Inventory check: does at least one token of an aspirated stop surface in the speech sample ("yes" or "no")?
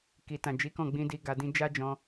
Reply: no